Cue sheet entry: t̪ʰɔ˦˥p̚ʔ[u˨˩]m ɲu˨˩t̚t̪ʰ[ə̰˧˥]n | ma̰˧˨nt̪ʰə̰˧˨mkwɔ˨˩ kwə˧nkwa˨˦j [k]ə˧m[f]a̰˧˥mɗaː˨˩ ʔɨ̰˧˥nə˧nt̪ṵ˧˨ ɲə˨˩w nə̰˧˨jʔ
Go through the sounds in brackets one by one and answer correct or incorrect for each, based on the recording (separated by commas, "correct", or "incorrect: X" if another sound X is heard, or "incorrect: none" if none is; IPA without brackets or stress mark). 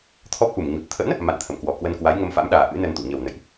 correct, correct, incorrect: ŋ, correct